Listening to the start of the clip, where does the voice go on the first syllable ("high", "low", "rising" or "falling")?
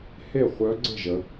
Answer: falling